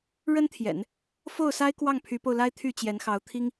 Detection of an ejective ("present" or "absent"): absent